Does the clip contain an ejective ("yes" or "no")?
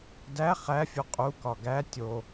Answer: yes